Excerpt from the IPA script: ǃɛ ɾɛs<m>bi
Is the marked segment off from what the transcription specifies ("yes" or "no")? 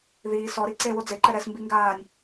no